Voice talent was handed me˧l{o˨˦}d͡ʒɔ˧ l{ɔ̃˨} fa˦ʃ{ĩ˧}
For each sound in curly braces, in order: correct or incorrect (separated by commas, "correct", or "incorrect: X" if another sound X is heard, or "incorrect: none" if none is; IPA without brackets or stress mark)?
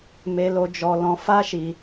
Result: incorrect: o˧, incorrect: ɔ̃˧, incorrect: i˧